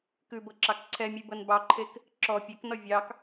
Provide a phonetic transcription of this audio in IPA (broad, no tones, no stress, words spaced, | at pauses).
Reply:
kʉbɤǁɑk ǀʰɛmʲʉbɤn bɑǃʰek | ǁɔ pʲɛknɔ vʲɑk